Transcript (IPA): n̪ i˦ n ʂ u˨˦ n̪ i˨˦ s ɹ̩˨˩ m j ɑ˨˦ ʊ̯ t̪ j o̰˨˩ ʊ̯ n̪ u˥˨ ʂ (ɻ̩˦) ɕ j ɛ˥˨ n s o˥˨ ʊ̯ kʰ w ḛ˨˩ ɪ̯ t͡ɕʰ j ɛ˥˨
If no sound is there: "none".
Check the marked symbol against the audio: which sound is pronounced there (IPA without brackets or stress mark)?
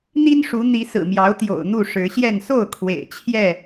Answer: ɻ̩˨˦